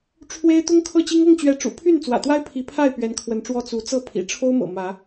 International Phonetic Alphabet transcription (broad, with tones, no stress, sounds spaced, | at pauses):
ʈ͡ʂʰ w e˦ ɪ̯ t̪ ʊ˦ ŋ kʰ ɤ˥˨ t͡ɕ i˦ ŋ ɤ˥˨ ŋ t͡ɕ ɥ ɛ˨˦ ʈ͡ʂ ṵ˨˩ pʰ y˥˨ n t͡s w ä̰˨˩ t̪ w a˦ ɪ̯ pʰ i˨˦ pʰ a˥˨ ɪ̯ p ɥ ɛ˨˦ n kʰ w ə˨˦ n ʈ͡ʂ w ɔ˦ t͡s u˨˦ t͡s ɤ˥˨ pʰ ḭ˨˩ ʈ͡ʂʰ o˦ ʊ̯ m ɤ̰˨˩ m ä˨˦